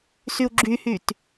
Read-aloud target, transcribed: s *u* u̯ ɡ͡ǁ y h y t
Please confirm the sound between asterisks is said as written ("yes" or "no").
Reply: no